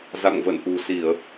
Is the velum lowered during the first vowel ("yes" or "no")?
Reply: no